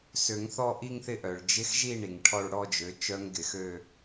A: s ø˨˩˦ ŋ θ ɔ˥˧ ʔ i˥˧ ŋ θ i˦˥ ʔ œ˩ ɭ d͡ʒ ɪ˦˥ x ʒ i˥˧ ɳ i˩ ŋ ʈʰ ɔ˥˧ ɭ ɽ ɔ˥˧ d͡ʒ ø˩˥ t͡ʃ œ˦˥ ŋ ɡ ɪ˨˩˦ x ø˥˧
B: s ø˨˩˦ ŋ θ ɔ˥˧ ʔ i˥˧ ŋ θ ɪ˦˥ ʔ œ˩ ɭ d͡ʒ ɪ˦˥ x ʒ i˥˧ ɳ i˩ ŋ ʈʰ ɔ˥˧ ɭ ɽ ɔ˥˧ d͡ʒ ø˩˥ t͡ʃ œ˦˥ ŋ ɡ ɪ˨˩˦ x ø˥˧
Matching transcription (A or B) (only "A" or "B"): B